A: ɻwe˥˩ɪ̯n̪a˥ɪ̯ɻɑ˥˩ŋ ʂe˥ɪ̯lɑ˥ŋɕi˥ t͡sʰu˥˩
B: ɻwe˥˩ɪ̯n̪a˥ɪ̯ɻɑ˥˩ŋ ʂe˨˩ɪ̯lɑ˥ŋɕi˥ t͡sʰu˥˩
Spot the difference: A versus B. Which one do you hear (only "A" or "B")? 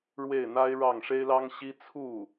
A